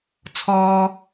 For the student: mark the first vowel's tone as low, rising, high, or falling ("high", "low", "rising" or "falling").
low